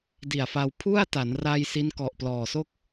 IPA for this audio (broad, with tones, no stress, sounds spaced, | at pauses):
d i˨˩ a̯ f a˧ w pʰ u˥˩ a̯ t a˩˦ n r a˧ j s i˦˥ n k ɔ˨˩ ʔ p l ɔː˨˩ s o˥˩ k̚